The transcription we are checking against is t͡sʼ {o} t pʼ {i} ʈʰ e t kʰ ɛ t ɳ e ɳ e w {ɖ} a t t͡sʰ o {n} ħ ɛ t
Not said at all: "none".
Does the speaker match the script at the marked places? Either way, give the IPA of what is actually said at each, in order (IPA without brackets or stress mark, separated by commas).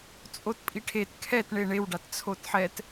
o, i, ɖ, t